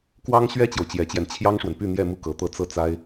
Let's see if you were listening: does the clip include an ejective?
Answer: no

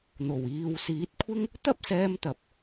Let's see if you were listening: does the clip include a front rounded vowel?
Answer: no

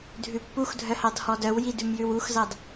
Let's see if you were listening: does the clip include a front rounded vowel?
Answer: yes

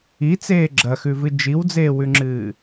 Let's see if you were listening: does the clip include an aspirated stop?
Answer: no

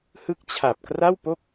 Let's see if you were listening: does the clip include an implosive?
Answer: no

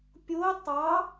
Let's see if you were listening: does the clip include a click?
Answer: no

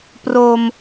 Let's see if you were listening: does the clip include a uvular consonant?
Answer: no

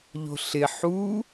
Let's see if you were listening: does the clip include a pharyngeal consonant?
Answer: yes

